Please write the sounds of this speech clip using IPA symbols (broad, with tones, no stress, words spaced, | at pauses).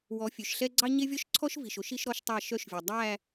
wɔ˨˦fʲø˨ʃɬɛ˦ ɡ͡ǀɑ˦ɲe˦vʲɔ˦ʃǀʰɔ˦ʃ vi˨ʃo˦ʃ i˦ʃɾɔ˦ʃ tˤɑ˦˨ ʃœ˦ʃvʲo˨ dˤæ˦˨